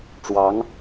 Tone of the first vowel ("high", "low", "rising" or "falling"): rising